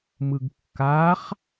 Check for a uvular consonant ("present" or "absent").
present